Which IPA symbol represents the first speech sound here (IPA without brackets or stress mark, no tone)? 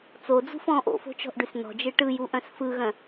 t͡s